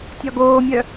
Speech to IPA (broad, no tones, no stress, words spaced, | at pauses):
tʲɒɡoːmʲœ